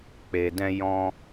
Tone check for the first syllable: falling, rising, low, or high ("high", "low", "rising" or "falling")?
low